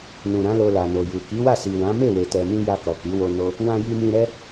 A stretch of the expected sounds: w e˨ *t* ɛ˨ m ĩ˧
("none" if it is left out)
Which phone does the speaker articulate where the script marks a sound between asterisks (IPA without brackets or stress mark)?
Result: t